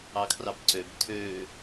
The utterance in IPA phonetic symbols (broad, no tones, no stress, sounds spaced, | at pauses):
ɑ kʰ r ɑ p ǀ ø b tʰ ø